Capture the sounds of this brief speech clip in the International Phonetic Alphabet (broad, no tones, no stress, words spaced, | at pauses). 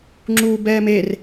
ŋ͡ǁuːbɛːmer